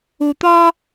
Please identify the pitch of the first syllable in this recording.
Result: high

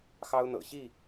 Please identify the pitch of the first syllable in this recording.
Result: high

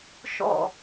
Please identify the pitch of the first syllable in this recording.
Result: falling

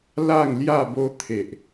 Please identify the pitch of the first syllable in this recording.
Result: falling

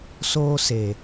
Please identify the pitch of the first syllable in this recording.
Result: high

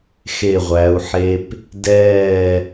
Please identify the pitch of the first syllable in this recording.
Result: falling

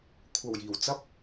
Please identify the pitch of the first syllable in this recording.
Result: low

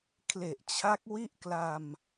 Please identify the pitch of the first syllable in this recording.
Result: low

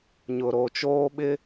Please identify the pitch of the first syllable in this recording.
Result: low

